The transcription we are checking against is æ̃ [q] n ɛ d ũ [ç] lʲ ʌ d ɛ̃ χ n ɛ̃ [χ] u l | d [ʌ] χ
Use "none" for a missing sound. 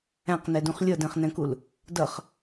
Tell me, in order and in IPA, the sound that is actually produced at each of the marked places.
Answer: q, χ, k, ʌ

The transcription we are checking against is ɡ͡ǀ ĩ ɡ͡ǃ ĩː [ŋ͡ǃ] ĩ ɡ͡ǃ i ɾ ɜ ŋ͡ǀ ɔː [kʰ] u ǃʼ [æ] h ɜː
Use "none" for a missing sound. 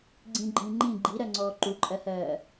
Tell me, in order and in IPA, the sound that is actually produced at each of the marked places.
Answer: ŋ͡ǃ, ǃ, ɜ

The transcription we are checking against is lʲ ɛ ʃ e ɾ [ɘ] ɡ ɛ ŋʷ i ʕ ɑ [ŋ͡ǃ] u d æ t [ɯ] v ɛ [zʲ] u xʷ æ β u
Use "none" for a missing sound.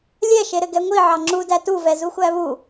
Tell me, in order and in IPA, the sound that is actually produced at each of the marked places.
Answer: ɘ, ŋ͡ǁ, u, z

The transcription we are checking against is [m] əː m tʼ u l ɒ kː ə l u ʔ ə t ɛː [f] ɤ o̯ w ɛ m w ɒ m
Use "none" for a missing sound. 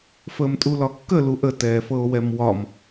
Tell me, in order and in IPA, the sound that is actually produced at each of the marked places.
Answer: f, f

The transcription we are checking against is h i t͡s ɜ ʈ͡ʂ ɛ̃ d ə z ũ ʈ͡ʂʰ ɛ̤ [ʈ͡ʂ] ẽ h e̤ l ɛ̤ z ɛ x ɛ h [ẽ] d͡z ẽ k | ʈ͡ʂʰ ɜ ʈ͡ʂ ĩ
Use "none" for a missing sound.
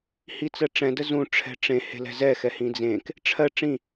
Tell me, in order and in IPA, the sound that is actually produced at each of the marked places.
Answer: ʈ͡ʂ, ĩ

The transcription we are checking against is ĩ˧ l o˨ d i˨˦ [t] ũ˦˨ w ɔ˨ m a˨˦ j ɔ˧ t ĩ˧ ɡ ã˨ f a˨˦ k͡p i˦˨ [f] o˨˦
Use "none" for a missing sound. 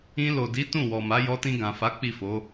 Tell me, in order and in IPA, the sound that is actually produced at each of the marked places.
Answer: t, f

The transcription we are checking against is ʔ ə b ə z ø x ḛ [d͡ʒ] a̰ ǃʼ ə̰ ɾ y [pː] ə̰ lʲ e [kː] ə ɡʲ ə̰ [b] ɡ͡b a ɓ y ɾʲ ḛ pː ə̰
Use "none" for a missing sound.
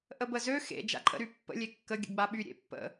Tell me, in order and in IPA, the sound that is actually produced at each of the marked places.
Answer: d͡ʒ, pː, kː, none

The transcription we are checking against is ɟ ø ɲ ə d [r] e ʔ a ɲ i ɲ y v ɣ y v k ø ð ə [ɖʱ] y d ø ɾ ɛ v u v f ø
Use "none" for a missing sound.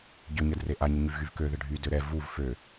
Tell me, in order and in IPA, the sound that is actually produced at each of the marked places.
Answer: r, ɖʱ

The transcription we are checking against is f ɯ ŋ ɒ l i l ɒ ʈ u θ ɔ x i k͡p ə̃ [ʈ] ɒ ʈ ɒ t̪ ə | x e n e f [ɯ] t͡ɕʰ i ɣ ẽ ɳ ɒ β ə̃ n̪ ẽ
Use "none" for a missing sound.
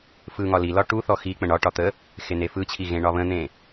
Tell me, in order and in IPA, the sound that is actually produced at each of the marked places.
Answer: ɳ, ɯ

